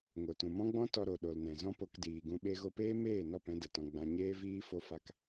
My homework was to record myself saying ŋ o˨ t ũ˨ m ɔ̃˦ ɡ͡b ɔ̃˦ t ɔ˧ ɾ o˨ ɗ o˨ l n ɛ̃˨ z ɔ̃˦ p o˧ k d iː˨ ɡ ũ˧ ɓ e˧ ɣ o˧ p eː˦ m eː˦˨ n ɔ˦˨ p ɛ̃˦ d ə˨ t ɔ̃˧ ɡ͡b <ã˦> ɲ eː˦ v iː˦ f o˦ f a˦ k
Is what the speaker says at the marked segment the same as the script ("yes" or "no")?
no